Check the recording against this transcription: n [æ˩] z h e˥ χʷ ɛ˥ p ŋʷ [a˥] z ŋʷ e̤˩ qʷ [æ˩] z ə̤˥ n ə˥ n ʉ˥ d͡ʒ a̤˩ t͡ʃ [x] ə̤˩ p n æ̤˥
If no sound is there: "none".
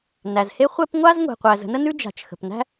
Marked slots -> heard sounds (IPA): æ˩, a˥, æ˩, x

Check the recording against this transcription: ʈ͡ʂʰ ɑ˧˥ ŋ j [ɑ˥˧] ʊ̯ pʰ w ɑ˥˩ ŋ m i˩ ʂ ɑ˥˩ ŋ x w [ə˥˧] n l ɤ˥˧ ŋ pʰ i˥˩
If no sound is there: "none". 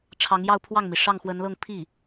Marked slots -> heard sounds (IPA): ɑ˥˧, ə˧˥

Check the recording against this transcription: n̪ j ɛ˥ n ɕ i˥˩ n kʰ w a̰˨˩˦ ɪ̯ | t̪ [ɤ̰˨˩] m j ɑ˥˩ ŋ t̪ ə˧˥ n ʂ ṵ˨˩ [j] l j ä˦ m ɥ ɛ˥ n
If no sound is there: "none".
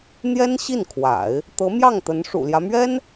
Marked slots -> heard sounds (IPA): ɤ˧˥, none

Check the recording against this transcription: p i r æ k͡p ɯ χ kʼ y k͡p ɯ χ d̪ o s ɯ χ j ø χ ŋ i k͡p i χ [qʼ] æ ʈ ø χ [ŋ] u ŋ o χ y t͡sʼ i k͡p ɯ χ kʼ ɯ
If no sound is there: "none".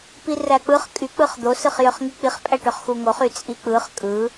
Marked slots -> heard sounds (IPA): pʼ, x

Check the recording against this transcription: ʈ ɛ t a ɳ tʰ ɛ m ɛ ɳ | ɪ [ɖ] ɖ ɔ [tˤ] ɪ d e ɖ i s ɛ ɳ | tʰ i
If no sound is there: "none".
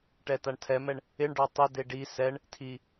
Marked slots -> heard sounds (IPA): ɳ, tˤ

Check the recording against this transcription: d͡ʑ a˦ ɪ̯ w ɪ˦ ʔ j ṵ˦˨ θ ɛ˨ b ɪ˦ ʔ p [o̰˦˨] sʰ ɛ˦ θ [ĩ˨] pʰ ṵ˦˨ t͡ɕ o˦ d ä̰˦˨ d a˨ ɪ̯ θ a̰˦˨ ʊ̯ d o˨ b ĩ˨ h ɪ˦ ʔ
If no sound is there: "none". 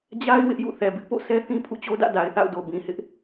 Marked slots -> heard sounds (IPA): o̰˦˨, ĩ˦

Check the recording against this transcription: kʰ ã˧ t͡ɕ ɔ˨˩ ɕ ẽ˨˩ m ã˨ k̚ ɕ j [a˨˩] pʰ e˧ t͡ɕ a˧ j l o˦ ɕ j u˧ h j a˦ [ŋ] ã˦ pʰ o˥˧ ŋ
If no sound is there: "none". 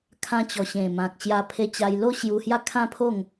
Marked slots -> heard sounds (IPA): a˧, kʰ

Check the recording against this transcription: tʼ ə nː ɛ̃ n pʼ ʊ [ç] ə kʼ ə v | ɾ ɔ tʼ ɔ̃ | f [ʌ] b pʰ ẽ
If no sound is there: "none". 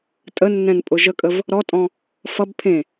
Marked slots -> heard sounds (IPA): ʒ, ʌ

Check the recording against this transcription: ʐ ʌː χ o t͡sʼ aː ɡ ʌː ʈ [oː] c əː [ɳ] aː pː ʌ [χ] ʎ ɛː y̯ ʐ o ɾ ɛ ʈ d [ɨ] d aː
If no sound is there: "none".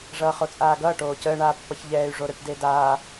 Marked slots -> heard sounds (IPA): oː, ɳ, ç, e

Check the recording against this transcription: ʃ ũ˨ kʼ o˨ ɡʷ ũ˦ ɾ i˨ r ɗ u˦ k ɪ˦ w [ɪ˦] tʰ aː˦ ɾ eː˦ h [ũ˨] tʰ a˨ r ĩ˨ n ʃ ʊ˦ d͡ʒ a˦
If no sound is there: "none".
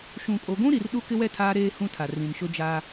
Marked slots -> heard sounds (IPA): ɛ˦, ũ˦

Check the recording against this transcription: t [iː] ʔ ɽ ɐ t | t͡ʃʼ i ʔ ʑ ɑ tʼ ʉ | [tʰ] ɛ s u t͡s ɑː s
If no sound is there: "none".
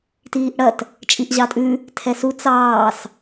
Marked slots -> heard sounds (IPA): iː, tʰ

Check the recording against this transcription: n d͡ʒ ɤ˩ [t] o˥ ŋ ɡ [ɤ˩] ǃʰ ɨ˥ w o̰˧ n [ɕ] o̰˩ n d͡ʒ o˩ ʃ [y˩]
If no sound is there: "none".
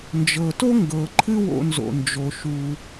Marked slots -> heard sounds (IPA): t, ɤ˩, z, u˩

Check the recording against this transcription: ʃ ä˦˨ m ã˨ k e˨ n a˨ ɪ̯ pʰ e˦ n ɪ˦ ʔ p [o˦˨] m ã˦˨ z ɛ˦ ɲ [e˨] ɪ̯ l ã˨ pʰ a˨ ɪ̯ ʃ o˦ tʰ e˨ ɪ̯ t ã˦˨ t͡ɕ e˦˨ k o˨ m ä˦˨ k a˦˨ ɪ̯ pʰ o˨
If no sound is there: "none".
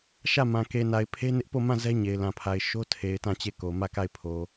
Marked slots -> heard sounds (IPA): o˦˨, e˨

